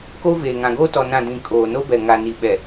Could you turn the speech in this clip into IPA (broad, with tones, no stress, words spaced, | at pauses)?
ko˦veː˨ ŋã˨ɡoː˦tɔ˨ nã˦˨ dĩ˨ kʼoː˨no˦bɛ˨ ŋa˨ni˨ɓɛ˨